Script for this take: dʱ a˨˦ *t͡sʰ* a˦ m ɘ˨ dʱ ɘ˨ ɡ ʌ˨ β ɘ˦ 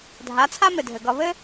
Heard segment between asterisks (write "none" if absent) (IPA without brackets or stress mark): t͡sʰ